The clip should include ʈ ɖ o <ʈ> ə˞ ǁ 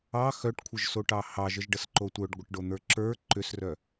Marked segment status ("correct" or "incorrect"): incorrect